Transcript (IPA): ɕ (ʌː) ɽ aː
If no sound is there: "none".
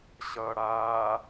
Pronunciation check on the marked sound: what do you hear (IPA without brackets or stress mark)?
ʌː